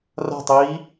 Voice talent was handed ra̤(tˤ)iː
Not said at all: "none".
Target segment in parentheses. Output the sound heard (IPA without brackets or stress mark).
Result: tˤ